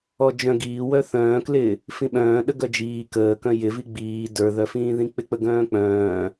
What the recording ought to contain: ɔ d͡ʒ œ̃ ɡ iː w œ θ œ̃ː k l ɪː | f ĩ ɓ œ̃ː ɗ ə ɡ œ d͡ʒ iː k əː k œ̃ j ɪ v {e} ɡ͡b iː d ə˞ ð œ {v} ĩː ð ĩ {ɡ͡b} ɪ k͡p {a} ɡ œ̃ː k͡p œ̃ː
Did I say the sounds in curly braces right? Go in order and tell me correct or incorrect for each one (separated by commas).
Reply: incorrect, incorrect, incorrect, incorrect